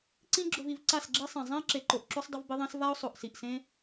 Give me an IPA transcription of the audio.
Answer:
ǀ ĩ˦ ɡ͡ǁ ʊ˧ v i˧ v ǀ a˦˨ s ɡ͡ǁ e˦ sˤ ɛ̃˨ zˤ ɛ̃˦ ɪ̯ ǁ e˨ ǃ o˨ ʔ ǁ u˦ sˤ dˤ ʊ˦ v b ɪ˦ ðˤ ẽ˦ s v a˦ ʊ̯ sˤ o˨ ʔ s i˨ ʔ s ẽ˦

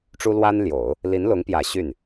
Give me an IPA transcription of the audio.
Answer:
ʈ͡ʂ u˥ l w a˥ n l j o˨˩˦ ʊ̯ | l i˧˥ n l ʊ˧˥ ŋ p j ä˨˩ ɕ y˥˩ n

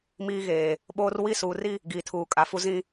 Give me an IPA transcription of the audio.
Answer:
m iː˦ ɣ eː˨ | ɓ oː˦ r w i˦˨ s uː˨ r i˦ | ɡ iː˨ tʰ uː˨ kʼ a˨ f u˦ z ĩ˦

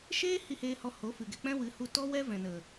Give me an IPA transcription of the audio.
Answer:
ʃ eː˦ h i˧ h eː˧ h ɔ˧ h o˨˦ f ɨ˨ ɡ ɛ˧ k͡p ɛ̃˦ w ɨ˨˦ h u˧ t ɔ˦ w ɛ˦ v ɛ̃˨ n ə˨

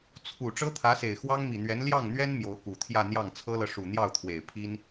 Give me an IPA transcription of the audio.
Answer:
t͡sʰ u˨˩ ʈ͡ʂ ɤ˥ t̪ʰ ä˧˥ s e˨˩ ɪ̯ x w ɑ˥ ŋ m i˨˩ n̪ ɥ ɛ˧˥ n l j ɑ˥˩ ŋ n̪ ɥ ɛ˥ n m j o˧˥ ʊ̯ k u˨˩ t̪ʰ j ä˥˧ n̪ j ɑ˥˩ ŋ t͡sʰ ɤ˥ l ɤ˨ ʂ u˨˩ n̪ j ɑ˥˩ ʊ̯ t̪ʰ w e˨˩ ɪ̯ pʰ i˥ n

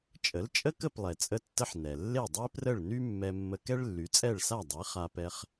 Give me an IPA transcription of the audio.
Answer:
t͡ʃʼ ə˩˥ l t͡ʃʼ ə˥ k ə˥˩ p lˠ ɛ˩ t͡sʼ ə˧ tː ə˧ ħ n ɛ˩ lː e˥˩ dˤ e˥ p r ə˥˩ ɭ n y˥ mː ɛ˧ mː ə˧ k ɛ˥ ɭ lː y˩˥ t͡sʼ ɛ˥˩ ɭ s a˥˩ dˤ e˩˥ χ a˧ p ɛ˧ χ

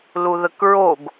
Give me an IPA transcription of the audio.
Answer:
l u ð ə k ɹ o ɡ

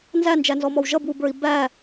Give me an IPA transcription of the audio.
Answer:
n z æ n d͡ʒ æ n z ɔ m ɔ w ʒ ʌ b w u b ə˞ i̯ b æ

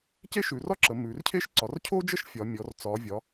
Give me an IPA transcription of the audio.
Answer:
c e˥ ʃ ʉ˩˧ r ɒ˥ ǁ ə˩˧ m ʉ˩˧ r cʰ e˥ ʃ ǀ ɒ˩˧ r cʰ o˥ d͡ʒ ə˥ ʃ fʲ ɒ˩˧ mʲ ɔ˩˧ r t͡s ɒ˩˧ vʲ ɒ˩˧

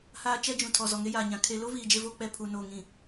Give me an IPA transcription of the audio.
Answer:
h aː˦ t͡ʃ ɛ˦ d͡ʒ ũ˨ tʰ ɔ˨ z ɔ˨ ŋ e˦ j aː˨ ɲ ã˨ kʰ e˨ l o˦ v iː˨ d͡ʒ e˦ v oː˦ k͡p ɛ˦ pʰ u˨ n oː˨ ŋ ĩ˨

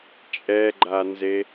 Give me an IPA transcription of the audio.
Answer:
t͡ʃʼ ɛ ɡ͡ǃ a n z e

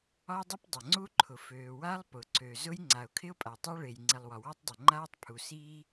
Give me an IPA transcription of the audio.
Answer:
ɒ˥ dˤ ɪ˥ p dˤ ə˩ ŋ͡ǀ u˥ ǃʰ ʊ˩ f øː˩ w a˥ lˠ p ʊ˩ ǀ ø˩ z ʊ˥ j ŋ͡ǀ a˩ ʊ̯ kʰ ɪ˥ ʊ̯ pʼ a˩ tˤ a˥ ɭ e˩ j ŋ͡ǀ i˩ lˠ w ɒ˩ w ɒ˥ tˤ dˤ ɪ˩ ŋ͡ǃ aː˥ tˤ pʰ u˩ s iː˥

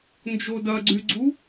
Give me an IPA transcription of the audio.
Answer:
n d͡ʒ o d ɐ ɡ͡ǀ y ɡ͡ǀ u

